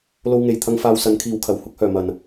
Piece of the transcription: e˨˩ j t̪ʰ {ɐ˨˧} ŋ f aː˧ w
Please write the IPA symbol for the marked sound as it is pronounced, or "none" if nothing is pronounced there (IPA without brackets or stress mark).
ɐ˧